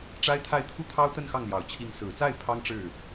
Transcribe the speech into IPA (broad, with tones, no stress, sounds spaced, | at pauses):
ʈ͡ʂ a˥ ɪ̯ t̪ʰ a˥˧ ɪ̯ t̪ʰ u˥˩ t̪ʰ ɑ˥ ʊ̯ t̪ ə˥˧ n x ɑ˥˩ ŋ l j ɑ˨˩ ʊ̯ t͡ɕʰ i˧˥ ŋ s ɹ̩˨˩ t͡s a˥˩ ɪ̯ pʰ ɑ˥ ŋ ʈ͡ʂ ɻ̩˥˩